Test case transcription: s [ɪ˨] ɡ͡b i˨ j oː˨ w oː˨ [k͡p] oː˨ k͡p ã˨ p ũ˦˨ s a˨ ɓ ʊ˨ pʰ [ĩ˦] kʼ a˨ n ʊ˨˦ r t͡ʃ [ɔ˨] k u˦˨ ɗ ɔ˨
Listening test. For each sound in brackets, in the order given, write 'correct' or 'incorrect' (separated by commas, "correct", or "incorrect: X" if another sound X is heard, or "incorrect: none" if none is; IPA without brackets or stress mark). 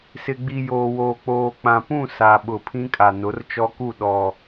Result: correct, correct, correct, incorrect: ɔ˦